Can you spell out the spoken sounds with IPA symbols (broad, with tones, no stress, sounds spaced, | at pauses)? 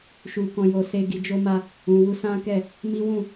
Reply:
ʃ u˨ k ɔ̃˨ j o˨ s e˧ ɡ i˧ d͡ʒ o˦ m a˦ | ũ˨ w u˧ s ã˦ k ɛ˦˨ | m i˦ w ũ˦˨